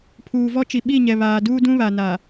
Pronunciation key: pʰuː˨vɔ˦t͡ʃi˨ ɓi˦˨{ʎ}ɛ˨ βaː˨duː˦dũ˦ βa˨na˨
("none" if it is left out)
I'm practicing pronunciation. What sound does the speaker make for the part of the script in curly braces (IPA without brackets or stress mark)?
ɲ